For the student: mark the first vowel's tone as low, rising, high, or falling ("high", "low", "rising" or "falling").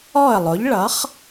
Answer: falling